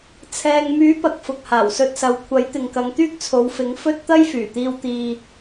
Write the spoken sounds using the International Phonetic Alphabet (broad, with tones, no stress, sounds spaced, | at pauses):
t͡sʰ ɛː˨ ŋ m yː˨˥ p ɐ˨ k̚ f ʊ˨ k̚ h aː˨˩ w s ɵ˧ t̚ s ɐ˨˧ w kʷʰ ɐ˨˥ j t̪ ɪ˨ ŋ k ɐ˨˧ ŋ t̪ yː˥ k̚ t͡sʰ o˨˧ w f ɪ˨˥ ŋ f ɵ˥ t̚ t̪ ɐ˥ j f yː˨˩ t̪ iː˧ w t̪ iː˧